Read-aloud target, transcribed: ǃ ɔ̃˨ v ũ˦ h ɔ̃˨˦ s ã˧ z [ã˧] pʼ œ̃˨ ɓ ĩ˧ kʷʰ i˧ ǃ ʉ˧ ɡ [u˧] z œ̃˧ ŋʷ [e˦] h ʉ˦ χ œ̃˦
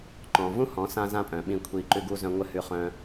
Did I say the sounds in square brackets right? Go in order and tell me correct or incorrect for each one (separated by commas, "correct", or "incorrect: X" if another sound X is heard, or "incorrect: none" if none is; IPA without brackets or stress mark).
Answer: correct, correct, incorrect: ɘ˦